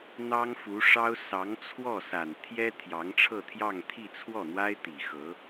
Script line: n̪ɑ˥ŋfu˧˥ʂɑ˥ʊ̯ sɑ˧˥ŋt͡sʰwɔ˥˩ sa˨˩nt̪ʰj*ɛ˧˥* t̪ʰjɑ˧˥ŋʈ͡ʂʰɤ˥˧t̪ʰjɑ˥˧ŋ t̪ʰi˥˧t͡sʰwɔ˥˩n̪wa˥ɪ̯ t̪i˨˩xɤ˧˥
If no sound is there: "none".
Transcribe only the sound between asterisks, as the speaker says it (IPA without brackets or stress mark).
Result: ɛ˥